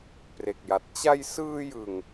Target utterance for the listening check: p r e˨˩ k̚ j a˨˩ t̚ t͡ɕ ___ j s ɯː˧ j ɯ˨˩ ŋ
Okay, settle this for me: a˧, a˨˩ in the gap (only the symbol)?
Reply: a˧